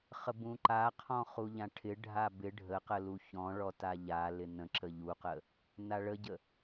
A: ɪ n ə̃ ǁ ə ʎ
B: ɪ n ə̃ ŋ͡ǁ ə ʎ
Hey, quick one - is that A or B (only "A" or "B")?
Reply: A